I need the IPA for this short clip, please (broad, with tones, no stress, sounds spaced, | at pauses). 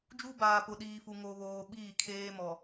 d͡ʒ u˦ b aː˨ p ʊ˨ ɗ iː˨ f u˨ ŋ o˨ β oː˨ ɓ iː˦˨ kʰ eː˦ m ɔ˨